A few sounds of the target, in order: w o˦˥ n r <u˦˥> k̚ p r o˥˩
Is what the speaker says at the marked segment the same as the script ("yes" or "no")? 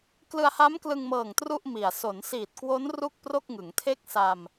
no